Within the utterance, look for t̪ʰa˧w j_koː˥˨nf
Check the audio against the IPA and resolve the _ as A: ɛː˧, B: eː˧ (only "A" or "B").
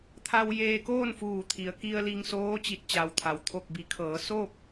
B